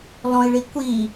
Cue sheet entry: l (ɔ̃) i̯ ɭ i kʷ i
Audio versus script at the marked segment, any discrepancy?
no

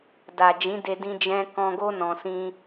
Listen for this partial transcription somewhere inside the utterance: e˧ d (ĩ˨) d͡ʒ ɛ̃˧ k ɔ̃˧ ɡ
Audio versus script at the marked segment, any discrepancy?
yes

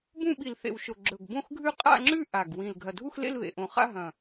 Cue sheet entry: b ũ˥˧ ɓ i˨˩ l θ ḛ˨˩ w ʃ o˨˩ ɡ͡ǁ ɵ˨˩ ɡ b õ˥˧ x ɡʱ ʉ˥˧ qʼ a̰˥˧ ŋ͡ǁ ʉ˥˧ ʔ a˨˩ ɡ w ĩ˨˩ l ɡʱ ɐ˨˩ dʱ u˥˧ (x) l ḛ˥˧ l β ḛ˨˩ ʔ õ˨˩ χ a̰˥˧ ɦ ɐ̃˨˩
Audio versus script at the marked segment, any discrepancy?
no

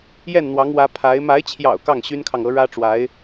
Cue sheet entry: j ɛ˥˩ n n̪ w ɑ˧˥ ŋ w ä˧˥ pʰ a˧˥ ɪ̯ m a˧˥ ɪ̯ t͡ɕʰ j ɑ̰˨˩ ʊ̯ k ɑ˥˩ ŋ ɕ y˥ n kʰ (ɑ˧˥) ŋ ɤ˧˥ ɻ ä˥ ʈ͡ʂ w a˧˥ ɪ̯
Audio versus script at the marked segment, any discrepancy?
yes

